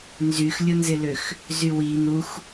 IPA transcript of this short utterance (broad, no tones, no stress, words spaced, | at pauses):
nzyxlʲʊnzɪløx | zywi n̪ux